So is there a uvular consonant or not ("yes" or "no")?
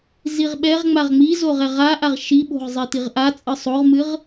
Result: yes